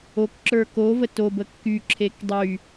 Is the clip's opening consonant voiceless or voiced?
voiceless